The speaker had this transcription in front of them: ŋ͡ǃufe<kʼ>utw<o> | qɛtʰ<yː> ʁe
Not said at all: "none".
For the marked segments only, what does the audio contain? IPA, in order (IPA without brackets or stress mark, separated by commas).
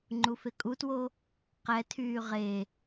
kʼ, o, yː